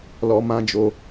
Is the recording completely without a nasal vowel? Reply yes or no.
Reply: no